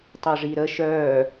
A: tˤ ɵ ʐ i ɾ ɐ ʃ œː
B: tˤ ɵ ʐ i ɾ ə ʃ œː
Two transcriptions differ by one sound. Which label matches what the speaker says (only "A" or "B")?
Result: B